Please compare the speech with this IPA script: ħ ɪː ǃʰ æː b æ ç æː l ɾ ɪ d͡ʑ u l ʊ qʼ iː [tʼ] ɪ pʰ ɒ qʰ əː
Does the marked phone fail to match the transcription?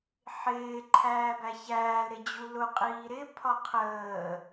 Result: yes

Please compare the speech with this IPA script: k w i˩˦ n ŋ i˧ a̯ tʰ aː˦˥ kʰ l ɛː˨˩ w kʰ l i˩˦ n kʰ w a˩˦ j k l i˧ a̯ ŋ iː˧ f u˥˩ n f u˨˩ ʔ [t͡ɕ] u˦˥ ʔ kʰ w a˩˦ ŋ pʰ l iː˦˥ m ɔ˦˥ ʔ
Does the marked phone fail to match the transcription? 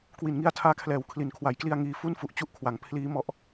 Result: no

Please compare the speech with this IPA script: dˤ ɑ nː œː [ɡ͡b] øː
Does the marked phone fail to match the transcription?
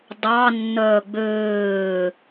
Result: no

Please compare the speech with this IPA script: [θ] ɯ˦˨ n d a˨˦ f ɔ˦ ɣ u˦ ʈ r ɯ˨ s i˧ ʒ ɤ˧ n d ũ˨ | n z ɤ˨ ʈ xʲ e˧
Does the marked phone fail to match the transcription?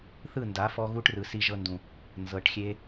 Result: no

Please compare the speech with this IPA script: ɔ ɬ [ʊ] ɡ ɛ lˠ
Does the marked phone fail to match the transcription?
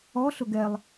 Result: no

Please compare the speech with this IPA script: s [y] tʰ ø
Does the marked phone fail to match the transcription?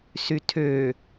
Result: no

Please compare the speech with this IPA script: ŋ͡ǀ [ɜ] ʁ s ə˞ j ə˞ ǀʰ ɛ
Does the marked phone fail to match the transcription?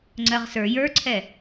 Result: no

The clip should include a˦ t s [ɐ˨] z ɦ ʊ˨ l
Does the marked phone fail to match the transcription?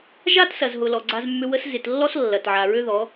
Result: no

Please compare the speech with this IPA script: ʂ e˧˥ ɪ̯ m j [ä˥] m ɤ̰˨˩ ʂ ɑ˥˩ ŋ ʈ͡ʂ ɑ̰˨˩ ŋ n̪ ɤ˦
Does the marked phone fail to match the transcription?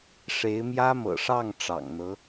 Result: no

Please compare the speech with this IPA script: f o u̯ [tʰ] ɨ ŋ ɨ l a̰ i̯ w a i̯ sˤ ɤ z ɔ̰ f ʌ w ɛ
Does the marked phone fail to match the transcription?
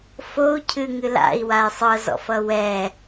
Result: yes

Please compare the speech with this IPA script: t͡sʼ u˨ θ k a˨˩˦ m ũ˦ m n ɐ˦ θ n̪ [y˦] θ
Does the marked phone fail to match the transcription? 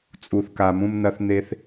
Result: yes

